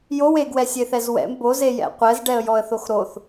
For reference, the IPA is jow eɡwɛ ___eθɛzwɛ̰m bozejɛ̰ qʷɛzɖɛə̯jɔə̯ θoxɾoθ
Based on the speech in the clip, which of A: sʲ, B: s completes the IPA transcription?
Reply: A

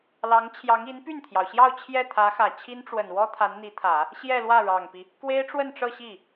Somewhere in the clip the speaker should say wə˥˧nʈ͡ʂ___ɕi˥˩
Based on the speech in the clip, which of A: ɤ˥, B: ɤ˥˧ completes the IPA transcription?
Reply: B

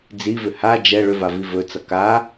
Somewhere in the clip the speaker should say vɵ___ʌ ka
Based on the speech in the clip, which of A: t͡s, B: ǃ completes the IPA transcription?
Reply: A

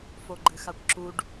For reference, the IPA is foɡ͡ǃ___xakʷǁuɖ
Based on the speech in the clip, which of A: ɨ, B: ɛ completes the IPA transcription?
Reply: A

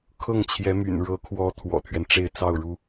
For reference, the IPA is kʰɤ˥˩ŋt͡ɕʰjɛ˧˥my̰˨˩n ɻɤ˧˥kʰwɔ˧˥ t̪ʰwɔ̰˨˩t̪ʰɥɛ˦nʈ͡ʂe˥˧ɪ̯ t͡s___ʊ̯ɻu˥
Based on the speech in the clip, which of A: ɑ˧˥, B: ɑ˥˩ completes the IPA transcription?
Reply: B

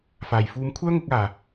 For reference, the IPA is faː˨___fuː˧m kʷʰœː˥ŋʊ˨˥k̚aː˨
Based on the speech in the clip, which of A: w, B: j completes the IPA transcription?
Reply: B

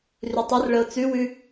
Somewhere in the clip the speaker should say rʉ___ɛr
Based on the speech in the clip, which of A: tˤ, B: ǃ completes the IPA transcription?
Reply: A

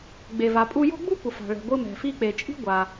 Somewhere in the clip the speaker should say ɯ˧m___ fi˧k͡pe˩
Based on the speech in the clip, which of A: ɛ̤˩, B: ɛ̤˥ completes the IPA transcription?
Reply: A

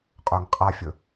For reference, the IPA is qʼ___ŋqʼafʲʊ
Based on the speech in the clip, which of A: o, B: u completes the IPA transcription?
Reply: A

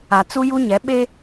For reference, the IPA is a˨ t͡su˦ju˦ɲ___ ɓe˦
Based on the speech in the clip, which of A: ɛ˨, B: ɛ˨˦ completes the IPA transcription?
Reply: B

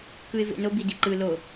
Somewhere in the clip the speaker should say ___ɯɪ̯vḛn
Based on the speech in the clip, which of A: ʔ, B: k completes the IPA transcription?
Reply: B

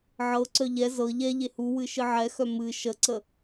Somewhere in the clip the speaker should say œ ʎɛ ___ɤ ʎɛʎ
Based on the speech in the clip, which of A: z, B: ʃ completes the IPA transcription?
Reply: A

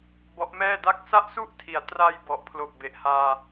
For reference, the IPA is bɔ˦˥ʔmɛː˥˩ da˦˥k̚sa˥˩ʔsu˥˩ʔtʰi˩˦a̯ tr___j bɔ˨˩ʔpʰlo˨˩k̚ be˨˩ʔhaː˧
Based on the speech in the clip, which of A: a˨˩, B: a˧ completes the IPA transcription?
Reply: B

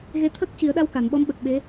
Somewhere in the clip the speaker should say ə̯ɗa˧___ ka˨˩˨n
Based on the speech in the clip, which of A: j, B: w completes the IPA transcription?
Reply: B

